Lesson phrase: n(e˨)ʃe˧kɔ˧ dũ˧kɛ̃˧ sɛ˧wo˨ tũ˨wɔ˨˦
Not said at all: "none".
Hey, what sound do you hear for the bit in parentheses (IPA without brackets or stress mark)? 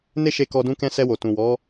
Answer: e˦